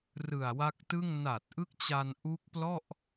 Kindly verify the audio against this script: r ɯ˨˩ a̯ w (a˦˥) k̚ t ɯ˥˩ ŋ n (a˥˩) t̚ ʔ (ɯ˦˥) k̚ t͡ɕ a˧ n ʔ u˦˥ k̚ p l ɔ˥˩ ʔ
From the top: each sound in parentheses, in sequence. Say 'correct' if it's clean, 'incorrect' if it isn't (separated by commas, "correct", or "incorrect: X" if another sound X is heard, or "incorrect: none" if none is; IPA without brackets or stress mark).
correct, incorrect: a˨˩, correct